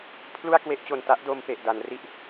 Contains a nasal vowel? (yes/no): no